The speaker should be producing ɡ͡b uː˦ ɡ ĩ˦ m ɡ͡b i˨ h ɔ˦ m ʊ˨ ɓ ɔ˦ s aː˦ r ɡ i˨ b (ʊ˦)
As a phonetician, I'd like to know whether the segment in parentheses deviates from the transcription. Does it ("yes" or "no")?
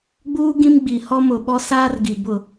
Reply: yes